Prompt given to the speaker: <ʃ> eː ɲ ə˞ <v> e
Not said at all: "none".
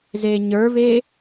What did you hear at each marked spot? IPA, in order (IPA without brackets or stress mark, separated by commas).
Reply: z, v